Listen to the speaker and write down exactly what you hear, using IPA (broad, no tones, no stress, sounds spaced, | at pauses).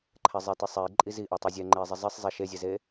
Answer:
ǃʰ ɛ zˤ e t i sˤ e i̯ ǃʼ i z i ʔ ɑ tˤ e zʲ ɛ ŋ͡ǃ e i̯ zˤ i zˤ i sˤ zˤ e ʃ e zʲ ɛ z e